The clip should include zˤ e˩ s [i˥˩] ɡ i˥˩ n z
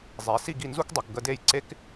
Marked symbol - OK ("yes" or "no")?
yes